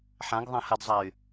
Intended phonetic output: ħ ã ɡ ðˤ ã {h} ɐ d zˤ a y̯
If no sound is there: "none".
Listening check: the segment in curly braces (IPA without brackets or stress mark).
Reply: h